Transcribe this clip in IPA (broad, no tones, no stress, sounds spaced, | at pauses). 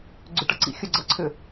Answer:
ɡ͡ǀ ʏ ʈ ɐ ǀ ḭ xʲ œ ɡ͡ǀ ɐ ǀʰ ʏ